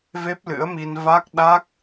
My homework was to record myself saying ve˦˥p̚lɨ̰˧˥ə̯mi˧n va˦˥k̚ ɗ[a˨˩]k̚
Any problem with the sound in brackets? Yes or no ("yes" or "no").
yes